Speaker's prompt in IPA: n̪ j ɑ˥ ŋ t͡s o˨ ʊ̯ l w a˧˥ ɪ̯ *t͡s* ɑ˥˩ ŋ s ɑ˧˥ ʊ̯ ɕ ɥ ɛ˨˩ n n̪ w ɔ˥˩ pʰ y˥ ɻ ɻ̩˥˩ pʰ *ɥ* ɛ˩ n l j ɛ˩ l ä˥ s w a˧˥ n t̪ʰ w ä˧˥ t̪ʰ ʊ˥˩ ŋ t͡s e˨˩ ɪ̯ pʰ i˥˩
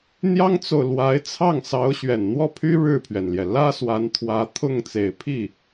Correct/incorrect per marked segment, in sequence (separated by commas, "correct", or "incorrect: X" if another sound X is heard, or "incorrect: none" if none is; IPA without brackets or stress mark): incorrect: t͡sʰ, correct